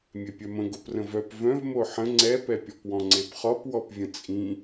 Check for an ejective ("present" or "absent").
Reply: present